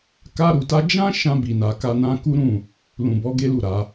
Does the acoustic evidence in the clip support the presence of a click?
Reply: no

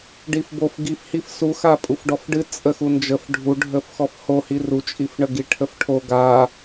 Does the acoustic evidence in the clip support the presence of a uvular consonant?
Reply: no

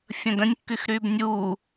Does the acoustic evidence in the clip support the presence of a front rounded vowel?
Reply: yes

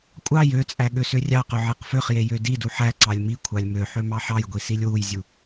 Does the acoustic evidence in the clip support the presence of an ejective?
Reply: yes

